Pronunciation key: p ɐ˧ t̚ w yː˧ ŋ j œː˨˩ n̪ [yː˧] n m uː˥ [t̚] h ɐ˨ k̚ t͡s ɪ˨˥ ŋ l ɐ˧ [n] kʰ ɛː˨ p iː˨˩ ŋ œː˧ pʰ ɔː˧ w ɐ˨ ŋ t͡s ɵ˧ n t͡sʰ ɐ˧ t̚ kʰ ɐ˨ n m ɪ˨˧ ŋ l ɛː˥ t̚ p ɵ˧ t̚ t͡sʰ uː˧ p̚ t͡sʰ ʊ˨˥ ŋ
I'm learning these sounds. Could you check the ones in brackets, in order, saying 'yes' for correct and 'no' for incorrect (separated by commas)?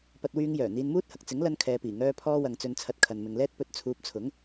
no, yes, yes